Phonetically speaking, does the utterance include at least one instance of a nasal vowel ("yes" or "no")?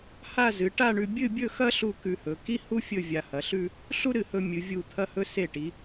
no